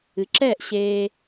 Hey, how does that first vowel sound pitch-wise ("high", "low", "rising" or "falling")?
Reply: rising